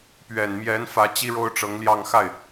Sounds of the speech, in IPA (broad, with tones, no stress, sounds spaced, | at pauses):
p ɥ ɛ˨˩ n m j ɛ˧˥ n f ä˧˥ t͡ɕ i˥ ɻ o˥ ʊ̯ ʈ͡ʂ ɤ˧˥ ŋ l j ɑ˥˧ ŋ x a˥˩ ɪ̯